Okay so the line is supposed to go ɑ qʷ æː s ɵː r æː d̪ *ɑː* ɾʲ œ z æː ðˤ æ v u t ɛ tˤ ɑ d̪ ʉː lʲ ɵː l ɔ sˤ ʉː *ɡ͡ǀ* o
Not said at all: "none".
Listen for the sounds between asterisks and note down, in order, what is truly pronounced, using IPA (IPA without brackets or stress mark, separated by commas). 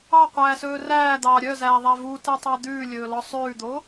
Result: ɑː, d̪